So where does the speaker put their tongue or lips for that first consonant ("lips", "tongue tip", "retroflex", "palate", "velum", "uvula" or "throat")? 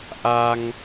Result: throat